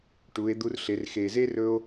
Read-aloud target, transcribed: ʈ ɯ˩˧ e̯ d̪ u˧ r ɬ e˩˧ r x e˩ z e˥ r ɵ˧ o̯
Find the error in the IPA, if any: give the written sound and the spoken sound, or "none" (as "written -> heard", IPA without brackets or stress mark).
ɯ˩˧ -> u˩˧